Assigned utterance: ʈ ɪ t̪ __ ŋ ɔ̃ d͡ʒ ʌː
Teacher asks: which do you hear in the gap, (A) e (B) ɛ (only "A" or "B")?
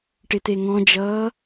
A